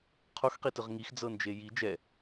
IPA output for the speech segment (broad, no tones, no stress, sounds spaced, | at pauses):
qʰ o x q i t ɯ ʁ ŋ i x d͡z ɤ n d͡ʒ e j i d͡ʒ ɛ